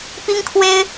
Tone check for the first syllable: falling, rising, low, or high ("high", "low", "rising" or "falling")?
high